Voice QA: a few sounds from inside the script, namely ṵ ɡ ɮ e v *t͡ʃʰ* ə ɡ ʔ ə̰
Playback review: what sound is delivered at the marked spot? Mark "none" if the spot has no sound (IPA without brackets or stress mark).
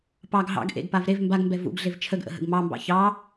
t͡ʃʰ